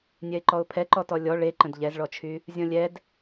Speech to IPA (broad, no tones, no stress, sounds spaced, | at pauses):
nʲ ɛ ɪ̯ ǃ ɔ ʊ̯ pʰ ɛ ǃ ɔ t ɔ lʲ ɔ ɭ e ǃ ə̃ d ʎ ɛ z ɭ ɔ t͡ʃʰ y | zʲ ɔ̃ lʲ ɛ d